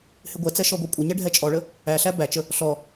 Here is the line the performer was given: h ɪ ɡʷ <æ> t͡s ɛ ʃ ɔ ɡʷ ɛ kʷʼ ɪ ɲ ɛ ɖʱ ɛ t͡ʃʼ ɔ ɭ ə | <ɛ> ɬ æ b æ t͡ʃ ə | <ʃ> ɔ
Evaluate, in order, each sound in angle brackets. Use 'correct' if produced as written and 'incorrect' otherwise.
incorrect: ɛ, incorrect: æ, incorrect: ɬ

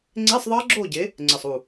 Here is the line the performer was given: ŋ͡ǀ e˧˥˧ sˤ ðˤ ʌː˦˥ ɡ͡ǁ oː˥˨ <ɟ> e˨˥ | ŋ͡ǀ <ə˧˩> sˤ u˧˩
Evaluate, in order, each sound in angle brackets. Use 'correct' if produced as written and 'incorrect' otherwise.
correct, correct

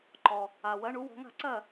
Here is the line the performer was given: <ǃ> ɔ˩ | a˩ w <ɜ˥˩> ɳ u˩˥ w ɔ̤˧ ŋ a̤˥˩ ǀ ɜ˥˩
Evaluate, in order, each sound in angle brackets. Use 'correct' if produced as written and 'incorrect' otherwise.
correct, incorrect: ɜ˩˥

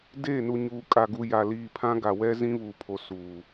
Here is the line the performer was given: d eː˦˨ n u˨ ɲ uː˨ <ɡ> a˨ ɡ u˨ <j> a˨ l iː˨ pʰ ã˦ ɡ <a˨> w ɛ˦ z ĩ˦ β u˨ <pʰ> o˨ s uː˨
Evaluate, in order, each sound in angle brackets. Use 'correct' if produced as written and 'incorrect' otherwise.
incorrect: kʼ, correct, correct, correct

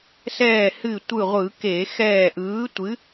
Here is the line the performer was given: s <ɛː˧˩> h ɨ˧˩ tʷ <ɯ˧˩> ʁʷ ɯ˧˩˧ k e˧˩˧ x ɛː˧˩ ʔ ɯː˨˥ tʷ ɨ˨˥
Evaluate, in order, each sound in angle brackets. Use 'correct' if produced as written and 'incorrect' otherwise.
correct, correct

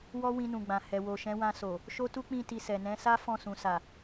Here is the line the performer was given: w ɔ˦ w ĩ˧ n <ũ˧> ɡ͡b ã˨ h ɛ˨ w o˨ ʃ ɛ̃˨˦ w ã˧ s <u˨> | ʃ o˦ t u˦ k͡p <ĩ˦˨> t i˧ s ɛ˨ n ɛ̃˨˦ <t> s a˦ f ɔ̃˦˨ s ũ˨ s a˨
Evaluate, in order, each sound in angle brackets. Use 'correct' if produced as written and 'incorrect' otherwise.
incorrect: ũ˨, incorrect: o˨, correct, incorrect: none

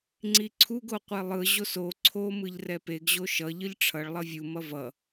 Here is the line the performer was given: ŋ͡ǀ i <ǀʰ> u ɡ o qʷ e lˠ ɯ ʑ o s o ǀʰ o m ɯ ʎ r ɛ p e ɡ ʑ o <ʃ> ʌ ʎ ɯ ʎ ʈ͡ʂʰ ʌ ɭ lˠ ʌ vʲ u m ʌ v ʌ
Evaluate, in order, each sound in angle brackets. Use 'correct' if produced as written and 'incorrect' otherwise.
correct, correct

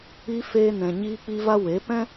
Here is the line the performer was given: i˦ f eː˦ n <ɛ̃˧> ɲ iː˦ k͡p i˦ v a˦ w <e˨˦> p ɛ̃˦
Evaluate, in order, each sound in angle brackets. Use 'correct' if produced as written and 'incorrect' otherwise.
correct, correct

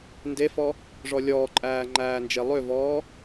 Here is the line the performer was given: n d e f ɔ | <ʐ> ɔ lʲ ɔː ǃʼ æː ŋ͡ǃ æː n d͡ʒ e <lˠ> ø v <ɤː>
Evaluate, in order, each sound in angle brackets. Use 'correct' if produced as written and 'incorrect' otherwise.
correct, correct, incorrect: ɔː

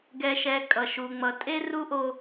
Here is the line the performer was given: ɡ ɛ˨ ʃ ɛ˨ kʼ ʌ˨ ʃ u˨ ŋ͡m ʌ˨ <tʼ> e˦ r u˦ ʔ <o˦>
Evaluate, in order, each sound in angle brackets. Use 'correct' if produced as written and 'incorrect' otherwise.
correct, correct

